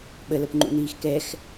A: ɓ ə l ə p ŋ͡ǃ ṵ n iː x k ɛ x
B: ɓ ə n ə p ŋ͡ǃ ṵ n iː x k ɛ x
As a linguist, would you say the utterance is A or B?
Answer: A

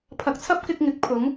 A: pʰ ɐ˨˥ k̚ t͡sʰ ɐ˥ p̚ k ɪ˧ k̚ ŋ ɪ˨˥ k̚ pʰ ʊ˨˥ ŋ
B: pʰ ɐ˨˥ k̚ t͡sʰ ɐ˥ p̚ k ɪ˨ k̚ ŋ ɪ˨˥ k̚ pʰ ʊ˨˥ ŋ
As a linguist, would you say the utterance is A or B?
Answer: A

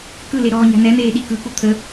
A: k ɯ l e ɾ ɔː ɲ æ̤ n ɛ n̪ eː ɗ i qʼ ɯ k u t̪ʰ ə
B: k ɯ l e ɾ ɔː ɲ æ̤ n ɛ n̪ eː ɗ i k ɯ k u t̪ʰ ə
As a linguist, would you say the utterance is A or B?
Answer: B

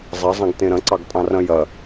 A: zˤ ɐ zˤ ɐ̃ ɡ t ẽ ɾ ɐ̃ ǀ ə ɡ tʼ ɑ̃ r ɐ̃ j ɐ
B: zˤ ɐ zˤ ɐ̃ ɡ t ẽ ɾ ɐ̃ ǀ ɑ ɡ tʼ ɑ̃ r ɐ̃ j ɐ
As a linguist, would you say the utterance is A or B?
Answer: B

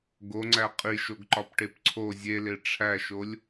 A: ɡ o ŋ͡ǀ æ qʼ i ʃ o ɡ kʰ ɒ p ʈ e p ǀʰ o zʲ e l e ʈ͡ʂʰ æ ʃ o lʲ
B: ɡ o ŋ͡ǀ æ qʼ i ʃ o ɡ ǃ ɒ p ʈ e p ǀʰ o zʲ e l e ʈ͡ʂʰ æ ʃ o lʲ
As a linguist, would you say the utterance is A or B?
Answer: B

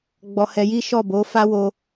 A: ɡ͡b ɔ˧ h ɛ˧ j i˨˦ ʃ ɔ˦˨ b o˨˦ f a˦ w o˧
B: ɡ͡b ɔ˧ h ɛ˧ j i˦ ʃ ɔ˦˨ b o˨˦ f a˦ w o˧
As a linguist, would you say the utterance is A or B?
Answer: B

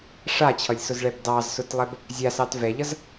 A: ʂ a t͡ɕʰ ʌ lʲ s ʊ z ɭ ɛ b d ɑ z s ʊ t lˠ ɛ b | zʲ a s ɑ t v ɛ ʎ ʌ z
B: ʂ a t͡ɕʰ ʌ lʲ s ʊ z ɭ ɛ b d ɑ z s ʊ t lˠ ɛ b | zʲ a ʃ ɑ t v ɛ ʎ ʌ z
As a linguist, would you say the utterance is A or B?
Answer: A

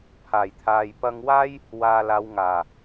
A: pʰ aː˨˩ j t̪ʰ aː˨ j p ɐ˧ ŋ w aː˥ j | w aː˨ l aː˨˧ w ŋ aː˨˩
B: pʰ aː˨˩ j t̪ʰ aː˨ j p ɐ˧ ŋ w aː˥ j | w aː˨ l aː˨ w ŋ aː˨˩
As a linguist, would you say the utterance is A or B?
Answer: A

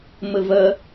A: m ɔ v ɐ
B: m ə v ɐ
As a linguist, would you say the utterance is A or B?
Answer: B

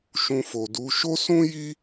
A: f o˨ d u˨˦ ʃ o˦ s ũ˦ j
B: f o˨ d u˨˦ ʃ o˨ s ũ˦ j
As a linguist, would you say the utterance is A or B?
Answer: A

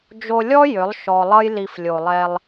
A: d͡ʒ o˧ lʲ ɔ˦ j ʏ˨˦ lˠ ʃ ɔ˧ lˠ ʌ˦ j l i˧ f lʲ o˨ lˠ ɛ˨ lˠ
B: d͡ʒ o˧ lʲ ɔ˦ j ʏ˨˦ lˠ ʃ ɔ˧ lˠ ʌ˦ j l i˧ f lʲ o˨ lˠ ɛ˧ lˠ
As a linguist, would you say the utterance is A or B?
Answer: B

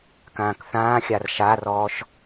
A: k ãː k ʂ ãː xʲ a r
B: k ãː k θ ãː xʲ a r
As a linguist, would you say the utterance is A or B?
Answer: B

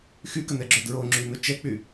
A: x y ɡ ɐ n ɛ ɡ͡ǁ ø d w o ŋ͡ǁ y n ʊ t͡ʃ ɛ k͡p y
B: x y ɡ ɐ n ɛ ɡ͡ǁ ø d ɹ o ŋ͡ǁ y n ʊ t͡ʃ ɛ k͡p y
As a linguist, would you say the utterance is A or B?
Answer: B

